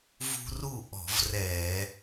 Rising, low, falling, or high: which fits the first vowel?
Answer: high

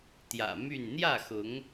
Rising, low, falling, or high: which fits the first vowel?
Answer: low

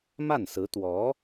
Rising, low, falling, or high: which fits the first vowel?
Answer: falling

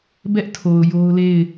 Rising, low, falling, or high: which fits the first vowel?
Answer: high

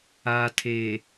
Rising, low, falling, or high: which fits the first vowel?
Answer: low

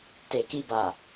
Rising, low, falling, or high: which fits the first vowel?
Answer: low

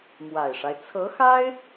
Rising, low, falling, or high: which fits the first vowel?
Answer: low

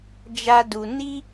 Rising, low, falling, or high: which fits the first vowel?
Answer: high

